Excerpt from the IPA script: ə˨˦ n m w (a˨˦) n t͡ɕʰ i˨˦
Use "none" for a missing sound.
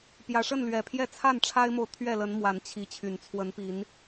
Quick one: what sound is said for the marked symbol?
a˨˦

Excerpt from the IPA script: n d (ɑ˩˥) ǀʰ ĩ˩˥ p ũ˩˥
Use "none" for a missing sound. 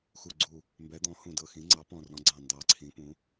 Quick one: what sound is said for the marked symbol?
ɑ˨˩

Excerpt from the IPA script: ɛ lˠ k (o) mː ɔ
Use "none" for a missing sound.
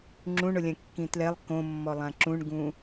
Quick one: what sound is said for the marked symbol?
õ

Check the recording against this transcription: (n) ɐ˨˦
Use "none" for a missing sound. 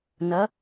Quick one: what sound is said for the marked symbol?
n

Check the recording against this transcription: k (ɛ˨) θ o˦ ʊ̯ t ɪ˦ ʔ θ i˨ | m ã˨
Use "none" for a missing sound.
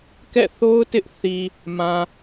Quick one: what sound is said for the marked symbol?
ɛ̰˦˨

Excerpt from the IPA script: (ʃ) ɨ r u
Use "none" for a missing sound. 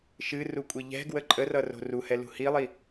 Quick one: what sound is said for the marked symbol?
ʃ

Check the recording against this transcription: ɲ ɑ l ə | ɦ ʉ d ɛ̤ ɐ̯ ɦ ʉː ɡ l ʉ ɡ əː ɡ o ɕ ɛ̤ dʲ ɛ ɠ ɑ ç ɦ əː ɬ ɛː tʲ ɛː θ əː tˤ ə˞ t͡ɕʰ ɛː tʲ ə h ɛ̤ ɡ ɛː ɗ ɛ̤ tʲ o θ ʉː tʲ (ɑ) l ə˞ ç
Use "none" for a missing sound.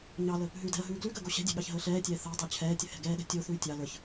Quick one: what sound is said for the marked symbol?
ɑ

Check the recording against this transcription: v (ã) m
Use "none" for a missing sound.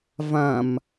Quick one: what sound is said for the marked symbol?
ã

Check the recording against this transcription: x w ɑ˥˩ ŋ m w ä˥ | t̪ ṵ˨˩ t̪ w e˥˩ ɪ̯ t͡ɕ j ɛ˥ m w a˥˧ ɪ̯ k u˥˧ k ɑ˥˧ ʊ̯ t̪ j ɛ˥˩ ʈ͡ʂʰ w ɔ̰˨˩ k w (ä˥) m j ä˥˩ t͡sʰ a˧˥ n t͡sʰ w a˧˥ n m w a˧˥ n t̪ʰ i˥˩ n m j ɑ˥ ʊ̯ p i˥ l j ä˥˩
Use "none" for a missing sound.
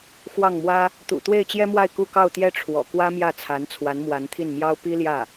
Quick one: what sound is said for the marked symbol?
ä˥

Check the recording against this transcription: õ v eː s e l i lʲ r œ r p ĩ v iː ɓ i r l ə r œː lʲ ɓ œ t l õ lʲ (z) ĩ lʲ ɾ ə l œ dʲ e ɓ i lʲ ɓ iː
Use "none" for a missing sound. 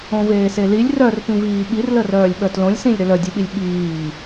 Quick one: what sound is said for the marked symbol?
s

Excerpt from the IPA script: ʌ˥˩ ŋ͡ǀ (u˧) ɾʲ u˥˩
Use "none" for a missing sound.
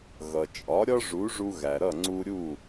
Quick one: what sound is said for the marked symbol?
u˧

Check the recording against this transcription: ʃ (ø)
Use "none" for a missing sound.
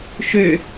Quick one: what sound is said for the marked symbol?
ø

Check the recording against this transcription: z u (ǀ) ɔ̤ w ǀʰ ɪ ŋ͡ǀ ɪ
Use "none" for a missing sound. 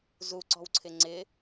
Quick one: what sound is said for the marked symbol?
ǀ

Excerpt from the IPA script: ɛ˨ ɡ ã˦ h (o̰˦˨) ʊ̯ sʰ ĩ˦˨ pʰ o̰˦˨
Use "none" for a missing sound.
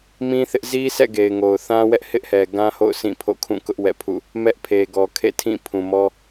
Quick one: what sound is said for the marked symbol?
o̰˦˨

